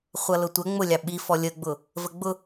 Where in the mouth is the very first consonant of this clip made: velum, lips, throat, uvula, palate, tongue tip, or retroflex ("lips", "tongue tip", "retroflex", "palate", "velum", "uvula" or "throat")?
uvula